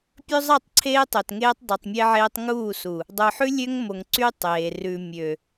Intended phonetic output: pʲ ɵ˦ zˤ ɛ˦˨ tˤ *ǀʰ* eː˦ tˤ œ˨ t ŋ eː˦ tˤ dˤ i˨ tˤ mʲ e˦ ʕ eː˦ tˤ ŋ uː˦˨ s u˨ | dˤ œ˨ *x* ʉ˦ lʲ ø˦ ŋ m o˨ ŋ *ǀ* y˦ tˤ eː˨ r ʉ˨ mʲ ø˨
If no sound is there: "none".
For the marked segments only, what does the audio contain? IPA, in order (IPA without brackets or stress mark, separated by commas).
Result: ǀʰ, ħ, ǀ